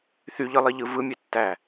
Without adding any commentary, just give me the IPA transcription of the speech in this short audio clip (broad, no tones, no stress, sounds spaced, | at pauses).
θ y ʎ ɯ lˠ i ʎ ɯ v ɯ mʲ e tː æ